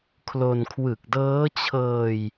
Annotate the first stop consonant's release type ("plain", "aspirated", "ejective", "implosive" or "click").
aspirated